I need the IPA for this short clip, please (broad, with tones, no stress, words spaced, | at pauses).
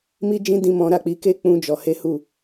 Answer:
mi˦d͡ʒĩ˦ dĩ˦mɔ̃˦ ɾa˦˨k͡pi˧ke˦ k͡pũ˦d͡ʒɔ˧he˦ hu˦˨